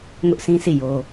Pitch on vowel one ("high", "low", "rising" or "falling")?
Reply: high